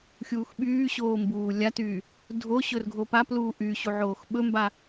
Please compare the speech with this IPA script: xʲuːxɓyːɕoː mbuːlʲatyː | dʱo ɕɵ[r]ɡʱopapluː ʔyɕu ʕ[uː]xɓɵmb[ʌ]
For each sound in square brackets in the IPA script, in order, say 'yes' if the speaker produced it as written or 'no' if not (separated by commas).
yes, no, no